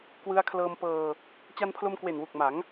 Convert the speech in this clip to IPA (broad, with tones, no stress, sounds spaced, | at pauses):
k w ɯ˧ a̯ kʰ l ɤː˧ m p ɤː˧ | t͡ɕ a˧ n pʰ l o˧ m k w e˨˩ n w u˨˩ k̚ m a˩˦ ŋ